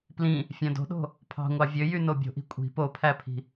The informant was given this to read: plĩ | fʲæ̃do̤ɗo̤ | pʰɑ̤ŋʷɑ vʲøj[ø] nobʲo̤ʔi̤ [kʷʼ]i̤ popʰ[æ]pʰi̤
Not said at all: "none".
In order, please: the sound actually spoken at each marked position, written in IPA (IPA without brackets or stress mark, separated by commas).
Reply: y, kʷʼ, æ